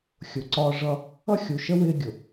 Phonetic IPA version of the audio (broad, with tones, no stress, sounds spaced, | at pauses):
xʲ ʊ˨ ǀ ɒː˦ ʐ ʌ˦ | ʌ˦ xʲ u˨ ʃ ə˦ w ɪː˦ ɡʲ ʊ˨